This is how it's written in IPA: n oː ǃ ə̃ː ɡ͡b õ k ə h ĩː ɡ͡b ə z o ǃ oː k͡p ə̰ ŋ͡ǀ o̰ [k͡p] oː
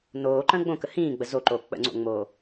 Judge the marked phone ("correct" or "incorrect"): incorrect